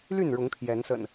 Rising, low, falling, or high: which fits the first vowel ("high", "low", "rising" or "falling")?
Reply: falling